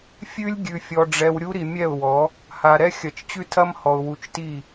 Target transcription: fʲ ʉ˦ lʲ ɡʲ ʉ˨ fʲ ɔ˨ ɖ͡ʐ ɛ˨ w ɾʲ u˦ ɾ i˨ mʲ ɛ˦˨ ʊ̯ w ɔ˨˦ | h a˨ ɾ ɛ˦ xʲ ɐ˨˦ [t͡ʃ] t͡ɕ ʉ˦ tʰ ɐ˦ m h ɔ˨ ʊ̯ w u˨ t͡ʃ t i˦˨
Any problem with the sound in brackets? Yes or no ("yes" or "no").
no